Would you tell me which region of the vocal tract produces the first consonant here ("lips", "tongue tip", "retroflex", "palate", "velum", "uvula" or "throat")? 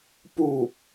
lips